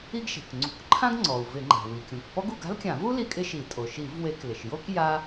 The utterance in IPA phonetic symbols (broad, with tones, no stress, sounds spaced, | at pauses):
i˥ ɡ ʃ e̤˩ k ŋ͡ǀ ṳ˧˩˧ k ǃʰ ã˥ ɡ ŋ͡ǀ ɔ˩ u̯ v ɪ˧˩˧ ŋ͡ǃ a̤˩ w i˩ kʲ ũ˩ k p ɔ˥ ɡ u˧˩˧ ɡ a̤˥ l kʲ ã˧˩˧ v u˥ l i˥ kʼ ɪ˥ ʃ i˧˩˧ tʼ o˩ ʃ i˧˩˧ v w e˧˩˧ k l ɪ˩ ʃ j o˥ k j a˥